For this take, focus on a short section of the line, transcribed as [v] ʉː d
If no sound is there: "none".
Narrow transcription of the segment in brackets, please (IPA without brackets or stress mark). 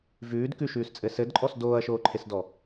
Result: v